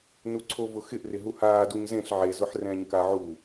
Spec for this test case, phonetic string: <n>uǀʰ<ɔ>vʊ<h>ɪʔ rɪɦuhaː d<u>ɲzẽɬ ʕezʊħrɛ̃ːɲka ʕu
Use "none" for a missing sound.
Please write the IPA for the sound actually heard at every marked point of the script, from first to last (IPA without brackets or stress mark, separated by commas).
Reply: n, o, x, u